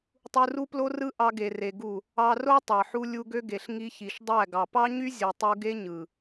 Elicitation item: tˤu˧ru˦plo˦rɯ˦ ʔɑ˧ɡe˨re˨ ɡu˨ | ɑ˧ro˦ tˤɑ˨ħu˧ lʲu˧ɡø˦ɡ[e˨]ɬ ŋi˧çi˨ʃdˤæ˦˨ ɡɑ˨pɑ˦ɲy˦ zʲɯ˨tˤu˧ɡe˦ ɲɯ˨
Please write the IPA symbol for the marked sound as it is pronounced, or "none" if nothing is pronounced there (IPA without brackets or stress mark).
e˨